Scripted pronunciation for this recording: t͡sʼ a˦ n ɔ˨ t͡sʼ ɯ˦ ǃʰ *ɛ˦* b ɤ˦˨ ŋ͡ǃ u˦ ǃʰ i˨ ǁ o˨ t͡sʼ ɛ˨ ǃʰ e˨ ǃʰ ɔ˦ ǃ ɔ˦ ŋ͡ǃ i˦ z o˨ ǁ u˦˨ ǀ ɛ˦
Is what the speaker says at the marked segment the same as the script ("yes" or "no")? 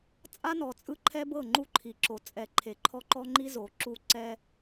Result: yes